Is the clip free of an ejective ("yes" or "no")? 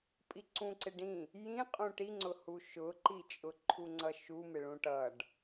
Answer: no